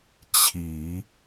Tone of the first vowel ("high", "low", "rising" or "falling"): low